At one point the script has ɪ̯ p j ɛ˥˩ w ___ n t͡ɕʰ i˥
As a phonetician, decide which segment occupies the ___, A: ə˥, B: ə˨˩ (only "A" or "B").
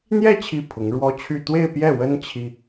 A